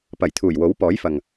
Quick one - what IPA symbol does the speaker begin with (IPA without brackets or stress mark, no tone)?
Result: p